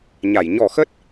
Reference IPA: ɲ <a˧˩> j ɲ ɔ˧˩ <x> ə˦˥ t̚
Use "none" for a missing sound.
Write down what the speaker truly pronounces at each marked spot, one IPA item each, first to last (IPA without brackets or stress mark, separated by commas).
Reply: a˧˩, x